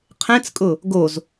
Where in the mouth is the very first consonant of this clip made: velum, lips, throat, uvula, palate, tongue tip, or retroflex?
uvula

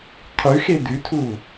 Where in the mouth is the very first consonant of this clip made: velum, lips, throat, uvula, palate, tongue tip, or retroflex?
uvula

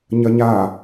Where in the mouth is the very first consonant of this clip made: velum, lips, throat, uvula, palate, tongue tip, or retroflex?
palate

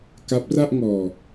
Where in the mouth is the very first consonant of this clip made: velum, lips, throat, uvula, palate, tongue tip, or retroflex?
velum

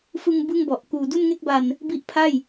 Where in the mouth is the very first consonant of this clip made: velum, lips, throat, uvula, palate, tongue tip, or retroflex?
lips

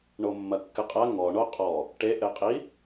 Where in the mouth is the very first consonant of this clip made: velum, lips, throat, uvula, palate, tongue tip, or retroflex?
retroflex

